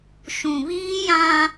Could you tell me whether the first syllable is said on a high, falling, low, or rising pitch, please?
low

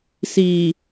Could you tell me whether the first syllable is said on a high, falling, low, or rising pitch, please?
low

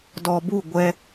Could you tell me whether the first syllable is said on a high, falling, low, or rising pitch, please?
low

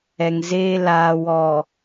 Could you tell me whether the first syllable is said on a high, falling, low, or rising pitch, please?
low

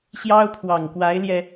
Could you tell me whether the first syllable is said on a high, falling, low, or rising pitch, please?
high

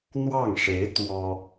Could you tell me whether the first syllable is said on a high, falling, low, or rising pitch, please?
falling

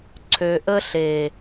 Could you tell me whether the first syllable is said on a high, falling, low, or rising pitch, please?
low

